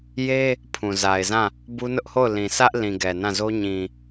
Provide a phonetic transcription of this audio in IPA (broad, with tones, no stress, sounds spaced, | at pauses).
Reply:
j e˦ | pʰ ũ˨ z a˨ ɪ̯ z ã˦˨ | b u˦ n ʊ˦ ʔ h o˦˨ ʊ̯ l ĩ˨ s ä˦ ʔ l ĩ˨ ɡ ɛ˨ n ã˦˨ z o˦ ɲ ĩ˨